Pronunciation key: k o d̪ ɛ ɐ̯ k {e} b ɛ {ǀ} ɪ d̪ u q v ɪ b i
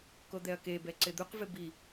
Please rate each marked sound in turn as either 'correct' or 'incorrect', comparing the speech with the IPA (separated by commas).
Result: correct, correct